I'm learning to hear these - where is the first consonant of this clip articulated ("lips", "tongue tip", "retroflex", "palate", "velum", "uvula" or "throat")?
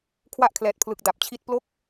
velum